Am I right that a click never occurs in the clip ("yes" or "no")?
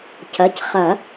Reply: yes